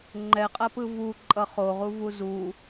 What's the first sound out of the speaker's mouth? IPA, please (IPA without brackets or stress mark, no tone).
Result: ŋ͡ǃ